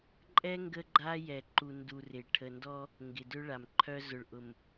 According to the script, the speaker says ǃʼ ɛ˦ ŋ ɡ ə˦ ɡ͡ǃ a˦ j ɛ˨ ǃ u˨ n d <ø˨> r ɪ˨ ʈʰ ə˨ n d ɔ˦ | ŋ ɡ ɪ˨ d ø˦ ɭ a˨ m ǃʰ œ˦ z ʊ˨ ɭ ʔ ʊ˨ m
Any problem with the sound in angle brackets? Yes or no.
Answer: yes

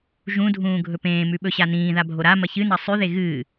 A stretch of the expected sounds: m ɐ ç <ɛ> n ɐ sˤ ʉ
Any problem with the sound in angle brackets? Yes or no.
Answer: yes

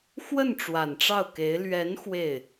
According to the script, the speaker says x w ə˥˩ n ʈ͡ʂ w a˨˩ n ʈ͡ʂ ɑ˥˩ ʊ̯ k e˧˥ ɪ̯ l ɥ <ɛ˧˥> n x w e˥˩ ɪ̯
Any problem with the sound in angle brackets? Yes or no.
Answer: no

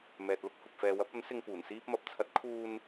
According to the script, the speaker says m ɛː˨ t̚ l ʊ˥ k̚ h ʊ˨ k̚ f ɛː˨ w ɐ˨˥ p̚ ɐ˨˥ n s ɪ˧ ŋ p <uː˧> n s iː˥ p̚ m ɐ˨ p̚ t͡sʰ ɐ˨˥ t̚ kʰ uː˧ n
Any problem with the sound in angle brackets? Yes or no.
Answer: yes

